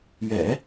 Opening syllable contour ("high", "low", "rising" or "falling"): low